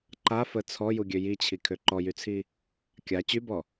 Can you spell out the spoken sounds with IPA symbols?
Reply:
ǃ a f ə t͡sʰ ɔ j u ɡʲ ø j i t͡ɕʰ i kʰ ø ǃ ɔ j y t͡sʰ i | kʲ a t͡ɕ y b ɔ

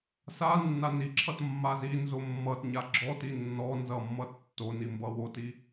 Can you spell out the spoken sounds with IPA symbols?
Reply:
s a nː a n i ǁʰ ʌ t mː a z i n z o mː ʌ t ɲ a ɡ͡ǁ ɔ t i nː ɔ n z ʌ mː ʌ tː o n i m b ʌ w o t i

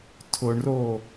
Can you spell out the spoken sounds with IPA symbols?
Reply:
tʰ ʊ ɳ r o

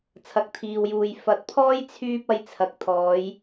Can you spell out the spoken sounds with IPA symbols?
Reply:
t͡sʰ ɐ˨ k̚ t̪ʰ iː˨ w j uː˨ j f ɐ˨˥ t̚ pʰ ɔː˥ j t͡sʰ yː˥ p̚ ɐ˧ j t͡sʰ ɐ˨˥ k̚ t̪ʰ ɔː˨˧ j

